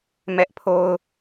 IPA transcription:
m ɛ˦ ʔ pʰ o˦ ʊ̯

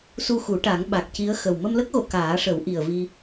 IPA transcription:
s u˧ x u˨˩˦ ʈ a˨˩˦ ŋ ɓ a˨˩ k̚ c i˧˥ ə̯ x ə˨˩ w m ə˧ m l ə˦˥ k̚ ɣ o˨˩˨ k aː˨˩˦ ʂ ə˨˩˦ w ʔ i˨˩ ə̯ v i˧

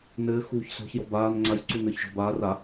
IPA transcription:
n ɘː x uː ç s ɔ̤ ç j ɔ b aː n ŋ͡ǀ a ç ǀ u n ə˞ ç ʒ ɔ̤ b aː r a

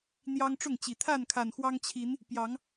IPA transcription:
n̪ j ɑ˦ ŋ ʈ͡ʂ ʊ˥˨ ŋ t͡ɕ i˨˩ t̪ʰ a˥˨ n kʰ a˨˩ n x w ɑ˦ ŋ t͡ɕʰ i˨˦ n | p j ɑ˨˦ ŋ

